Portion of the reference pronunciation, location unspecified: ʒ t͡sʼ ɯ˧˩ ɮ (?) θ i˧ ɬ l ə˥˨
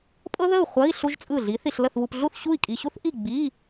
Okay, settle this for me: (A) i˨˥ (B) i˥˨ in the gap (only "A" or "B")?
A